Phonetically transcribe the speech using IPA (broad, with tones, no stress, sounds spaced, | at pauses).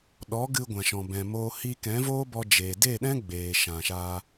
ɗ ɔ˨˦ ɡ ɨ˧ ɡʷ ã˨ ʃ ɔ̃˨ b ɛ̃˨ m oː˧ h i˧ k ɛ̃˨˦ v oː˦ b ɔ˧ d͡ʒ eː˨ d e˦˨ ɗ ɛ̃˦ ɡ͡b eː˨ ʃ ã˨ ʃ aː˧